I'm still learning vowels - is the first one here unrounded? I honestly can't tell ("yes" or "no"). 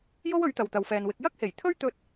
no